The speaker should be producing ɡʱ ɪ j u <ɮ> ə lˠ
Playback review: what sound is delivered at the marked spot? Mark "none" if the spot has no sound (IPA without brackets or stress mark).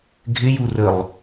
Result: r